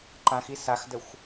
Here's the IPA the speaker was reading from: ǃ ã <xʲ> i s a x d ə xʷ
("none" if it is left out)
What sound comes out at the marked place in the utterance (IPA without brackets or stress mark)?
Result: x